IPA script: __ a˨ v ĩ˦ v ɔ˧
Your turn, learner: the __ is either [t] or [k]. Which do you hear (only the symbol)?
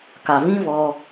k